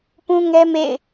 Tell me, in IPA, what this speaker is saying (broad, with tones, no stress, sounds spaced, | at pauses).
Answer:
p ũ˦ ŋ ɛ˦ m ḛ˦˨ ɪ̯